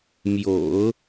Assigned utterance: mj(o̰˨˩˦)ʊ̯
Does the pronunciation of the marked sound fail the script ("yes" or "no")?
no